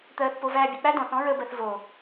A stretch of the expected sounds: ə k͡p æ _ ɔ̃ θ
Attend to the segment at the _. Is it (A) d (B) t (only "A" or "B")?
A